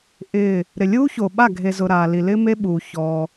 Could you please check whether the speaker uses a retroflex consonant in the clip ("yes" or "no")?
no